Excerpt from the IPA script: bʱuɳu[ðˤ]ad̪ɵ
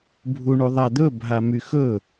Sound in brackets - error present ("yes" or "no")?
no